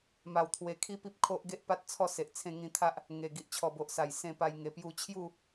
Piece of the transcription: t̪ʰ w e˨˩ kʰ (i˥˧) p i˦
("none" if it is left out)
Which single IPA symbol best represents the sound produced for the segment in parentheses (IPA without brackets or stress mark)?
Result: i˦